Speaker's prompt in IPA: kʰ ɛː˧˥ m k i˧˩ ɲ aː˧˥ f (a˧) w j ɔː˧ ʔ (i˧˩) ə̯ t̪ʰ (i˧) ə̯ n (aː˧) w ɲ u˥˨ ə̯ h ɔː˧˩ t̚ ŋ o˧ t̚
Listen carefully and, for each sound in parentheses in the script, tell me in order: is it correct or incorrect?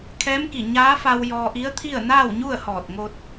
correct, incorrect, incorrect, incorrect

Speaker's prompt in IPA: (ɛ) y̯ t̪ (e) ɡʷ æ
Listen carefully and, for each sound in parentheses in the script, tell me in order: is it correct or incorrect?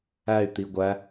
incorrect, incorrect

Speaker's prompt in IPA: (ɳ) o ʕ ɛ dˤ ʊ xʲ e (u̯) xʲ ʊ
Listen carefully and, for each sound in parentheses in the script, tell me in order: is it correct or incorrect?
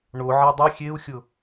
correct, correct

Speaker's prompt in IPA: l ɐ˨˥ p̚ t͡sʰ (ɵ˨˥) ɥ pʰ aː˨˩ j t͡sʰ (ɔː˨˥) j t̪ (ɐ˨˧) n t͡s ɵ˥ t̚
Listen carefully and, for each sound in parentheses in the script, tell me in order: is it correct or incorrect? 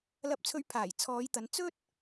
incorrect, incorrect, correct

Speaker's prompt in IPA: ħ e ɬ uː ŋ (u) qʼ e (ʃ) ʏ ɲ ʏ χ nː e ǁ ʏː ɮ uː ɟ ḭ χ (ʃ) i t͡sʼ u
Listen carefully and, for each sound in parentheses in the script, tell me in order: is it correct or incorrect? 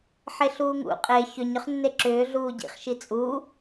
incorrect, incorrect, correct

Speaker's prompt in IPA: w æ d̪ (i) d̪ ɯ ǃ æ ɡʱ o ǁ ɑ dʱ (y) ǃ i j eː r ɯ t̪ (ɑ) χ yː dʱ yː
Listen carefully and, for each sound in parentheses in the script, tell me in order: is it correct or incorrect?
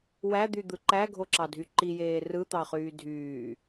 incorrect, correct, correct

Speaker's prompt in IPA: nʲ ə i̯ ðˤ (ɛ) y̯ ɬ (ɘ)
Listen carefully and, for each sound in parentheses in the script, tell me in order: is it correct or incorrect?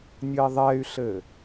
correct, correct

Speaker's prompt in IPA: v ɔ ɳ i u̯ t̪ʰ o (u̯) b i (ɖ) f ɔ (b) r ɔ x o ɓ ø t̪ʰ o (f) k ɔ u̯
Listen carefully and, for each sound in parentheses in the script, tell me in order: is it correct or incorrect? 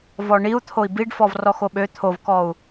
incorrect, correct, incorrect, incorrect

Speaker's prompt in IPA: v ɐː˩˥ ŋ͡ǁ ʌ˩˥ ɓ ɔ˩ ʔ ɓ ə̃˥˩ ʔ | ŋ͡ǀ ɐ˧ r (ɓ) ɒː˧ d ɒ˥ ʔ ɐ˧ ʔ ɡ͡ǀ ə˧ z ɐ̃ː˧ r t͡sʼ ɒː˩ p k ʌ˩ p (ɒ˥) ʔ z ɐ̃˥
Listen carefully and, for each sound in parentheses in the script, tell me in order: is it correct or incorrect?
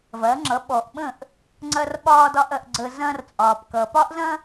correct, correct

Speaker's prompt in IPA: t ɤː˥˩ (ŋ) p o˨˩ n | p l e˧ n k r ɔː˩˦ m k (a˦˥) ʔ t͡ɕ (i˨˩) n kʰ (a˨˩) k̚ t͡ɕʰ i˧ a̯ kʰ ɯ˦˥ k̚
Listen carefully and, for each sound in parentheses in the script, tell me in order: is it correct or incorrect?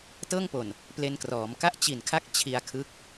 correct, incorrect, correct, incorrect

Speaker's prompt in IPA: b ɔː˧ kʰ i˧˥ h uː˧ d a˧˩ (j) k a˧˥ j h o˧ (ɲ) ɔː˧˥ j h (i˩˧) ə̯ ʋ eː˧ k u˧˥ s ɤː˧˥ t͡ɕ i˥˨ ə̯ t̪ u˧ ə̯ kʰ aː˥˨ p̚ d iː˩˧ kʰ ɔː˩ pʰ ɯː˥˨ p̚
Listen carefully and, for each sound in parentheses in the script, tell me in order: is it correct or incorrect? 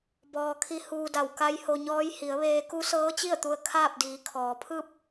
incorrect, correct, correct

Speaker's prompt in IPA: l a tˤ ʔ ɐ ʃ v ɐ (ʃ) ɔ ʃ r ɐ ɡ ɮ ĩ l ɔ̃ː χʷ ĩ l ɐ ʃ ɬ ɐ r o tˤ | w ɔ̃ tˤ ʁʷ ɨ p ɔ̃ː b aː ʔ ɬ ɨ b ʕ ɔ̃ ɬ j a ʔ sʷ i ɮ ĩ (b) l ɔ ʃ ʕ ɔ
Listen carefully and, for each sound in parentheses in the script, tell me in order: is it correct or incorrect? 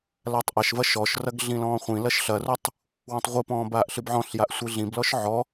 correct, correct

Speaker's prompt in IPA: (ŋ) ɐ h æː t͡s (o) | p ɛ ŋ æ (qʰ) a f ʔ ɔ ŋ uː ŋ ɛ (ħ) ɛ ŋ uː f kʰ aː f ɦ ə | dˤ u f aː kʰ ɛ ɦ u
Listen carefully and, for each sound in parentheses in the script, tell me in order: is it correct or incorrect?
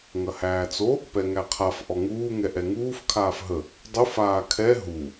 correct, correct, correct, incorrect

